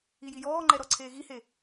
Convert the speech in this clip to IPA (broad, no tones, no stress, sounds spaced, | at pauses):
i j i j ɔː ŋ͡ǃ ɛ ɾ ɔ ǀʰ eː ɣ i h e